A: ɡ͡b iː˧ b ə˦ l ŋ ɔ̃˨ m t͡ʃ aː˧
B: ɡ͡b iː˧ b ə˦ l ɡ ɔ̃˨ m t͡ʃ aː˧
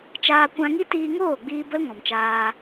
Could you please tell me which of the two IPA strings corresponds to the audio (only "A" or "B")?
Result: A